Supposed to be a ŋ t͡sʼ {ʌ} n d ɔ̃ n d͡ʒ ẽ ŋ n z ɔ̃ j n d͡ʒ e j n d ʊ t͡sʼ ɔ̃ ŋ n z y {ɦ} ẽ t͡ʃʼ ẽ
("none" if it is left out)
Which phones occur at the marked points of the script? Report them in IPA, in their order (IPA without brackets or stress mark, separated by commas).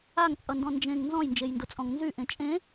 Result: ʌ, ʔ